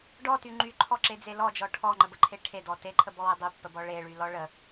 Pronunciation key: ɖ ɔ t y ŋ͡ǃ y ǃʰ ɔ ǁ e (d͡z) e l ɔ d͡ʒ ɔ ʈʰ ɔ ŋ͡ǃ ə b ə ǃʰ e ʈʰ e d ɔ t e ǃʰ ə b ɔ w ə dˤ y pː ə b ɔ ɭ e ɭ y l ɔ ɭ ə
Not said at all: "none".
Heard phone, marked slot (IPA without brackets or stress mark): d͡z